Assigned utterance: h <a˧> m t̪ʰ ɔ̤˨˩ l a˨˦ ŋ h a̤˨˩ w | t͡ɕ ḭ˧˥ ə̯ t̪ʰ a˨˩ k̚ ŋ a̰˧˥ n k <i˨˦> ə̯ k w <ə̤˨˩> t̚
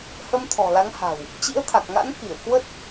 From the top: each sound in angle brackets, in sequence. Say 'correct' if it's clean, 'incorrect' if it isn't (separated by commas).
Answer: incorrect, incorrect, incorrect